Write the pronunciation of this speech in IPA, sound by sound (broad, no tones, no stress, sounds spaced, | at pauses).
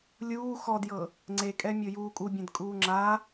lʲ uː x ɔ d j ɤ | ŋ͡ǀ e kʼ ɛ mʲ ɤ j uː kʼ u bʲ ɛ̃ d kʼ uː ŋ͡ǁ a